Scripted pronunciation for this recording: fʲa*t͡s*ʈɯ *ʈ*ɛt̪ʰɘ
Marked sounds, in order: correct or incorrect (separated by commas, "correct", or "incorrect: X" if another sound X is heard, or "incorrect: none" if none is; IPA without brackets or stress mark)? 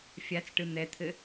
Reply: correct, incorrect: n̪